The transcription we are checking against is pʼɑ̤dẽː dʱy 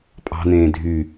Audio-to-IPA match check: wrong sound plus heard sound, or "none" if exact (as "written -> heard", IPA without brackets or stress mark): d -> n̪